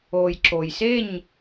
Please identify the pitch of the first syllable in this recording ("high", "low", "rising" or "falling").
low